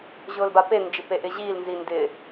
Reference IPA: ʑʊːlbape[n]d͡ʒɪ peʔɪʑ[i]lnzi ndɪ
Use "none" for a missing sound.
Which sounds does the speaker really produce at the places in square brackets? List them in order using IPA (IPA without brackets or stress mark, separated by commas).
n, iː